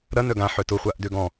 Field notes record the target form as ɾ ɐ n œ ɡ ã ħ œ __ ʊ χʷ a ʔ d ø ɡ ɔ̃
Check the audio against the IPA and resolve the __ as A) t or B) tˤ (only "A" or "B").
A